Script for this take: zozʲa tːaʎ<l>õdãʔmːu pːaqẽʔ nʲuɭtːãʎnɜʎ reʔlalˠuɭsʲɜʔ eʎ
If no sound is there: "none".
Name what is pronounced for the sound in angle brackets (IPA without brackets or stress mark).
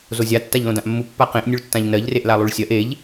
l